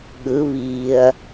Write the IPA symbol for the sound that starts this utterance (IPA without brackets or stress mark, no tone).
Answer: ɠ